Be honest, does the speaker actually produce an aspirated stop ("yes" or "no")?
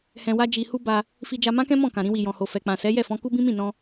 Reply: no